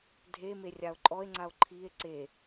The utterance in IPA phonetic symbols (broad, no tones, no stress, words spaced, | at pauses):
dʱeme rʲao̯ǃʼɔe̯ŋ͡ǀao̯ ǃʰie̯ ǀe